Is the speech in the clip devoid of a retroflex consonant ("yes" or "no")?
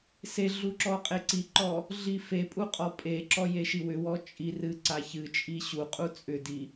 yes